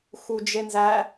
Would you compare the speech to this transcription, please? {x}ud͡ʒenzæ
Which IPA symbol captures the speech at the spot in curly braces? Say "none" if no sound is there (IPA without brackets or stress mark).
x